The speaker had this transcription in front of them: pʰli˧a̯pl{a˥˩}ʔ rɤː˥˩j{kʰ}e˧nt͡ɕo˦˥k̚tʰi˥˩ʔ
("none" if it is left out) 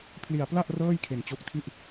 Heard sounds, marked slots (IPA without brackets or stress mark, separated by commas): a˥˩, kʰ